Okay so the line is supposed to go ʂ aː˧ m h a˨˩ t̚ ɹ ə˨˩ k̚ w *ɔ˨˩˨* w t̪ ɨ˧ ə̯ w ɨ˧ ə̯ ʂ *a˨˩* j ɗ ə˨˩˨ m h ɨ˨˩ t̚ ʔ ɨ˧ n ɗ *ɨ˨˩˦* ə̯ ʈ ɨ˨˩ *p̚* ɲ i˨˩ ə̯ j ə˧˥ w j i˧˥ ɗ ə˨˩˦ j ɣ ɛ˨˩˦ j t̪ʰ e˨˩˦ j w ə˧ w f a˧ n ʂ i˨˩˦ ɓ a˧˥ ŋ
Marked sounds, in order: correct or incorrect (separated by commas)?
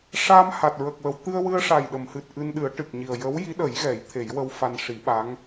incorrect, correct, correct, incorrect